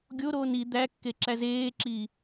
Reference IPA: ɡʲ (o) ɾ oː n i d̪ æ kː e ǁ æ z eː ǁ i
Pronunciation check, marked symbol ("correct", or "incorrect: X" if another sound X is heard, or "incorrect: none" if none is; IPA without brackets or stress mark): correct